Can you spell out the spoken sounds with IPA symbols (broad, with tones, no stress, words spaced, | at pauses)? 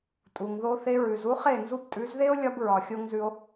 tʼu˨ŋðo˧θe˧ ɹʉ˨zu˦χe˦˨ nzu˧btʼʉ˨˦zðe˦o̯lʲɒ˧b ɹɒ˨xʲo˧ŋzʉ˧o̯